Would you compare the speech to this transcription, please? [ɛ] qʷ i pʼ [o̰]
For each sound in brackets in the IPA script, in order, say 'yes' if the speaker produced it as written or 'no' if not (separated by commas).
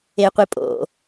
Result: no, yes